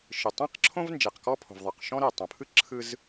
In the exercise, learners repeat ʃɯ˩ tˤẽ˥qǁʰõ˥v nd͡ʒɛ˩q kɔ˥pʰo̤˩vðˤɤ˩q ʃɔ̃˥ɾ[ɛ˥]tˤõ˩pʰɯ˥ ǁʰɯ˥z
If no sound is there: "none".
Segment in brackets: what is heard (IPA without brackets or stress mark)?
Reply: ɛ˩